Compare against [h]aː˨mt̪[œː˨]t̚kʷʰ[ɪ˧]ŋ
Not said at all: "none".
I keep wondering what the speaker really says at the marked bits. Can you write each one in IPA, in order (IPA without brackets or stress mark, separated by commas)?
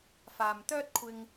f, œː˥, ɪ˧